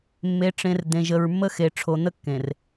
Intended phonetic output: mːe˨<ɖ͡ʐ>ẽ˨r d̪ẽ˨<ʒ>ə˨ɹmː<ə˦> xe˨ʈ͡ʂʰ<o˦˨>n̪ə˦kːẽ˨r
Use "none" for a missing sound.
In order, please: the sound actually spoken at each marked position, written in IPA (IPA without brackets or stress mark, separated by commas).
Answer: ʈ͡ʂ, ʒ, ə˦, o˨